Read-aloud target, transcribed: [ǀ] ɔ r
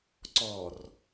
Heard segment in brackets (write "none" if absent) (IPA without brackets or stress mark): ǀ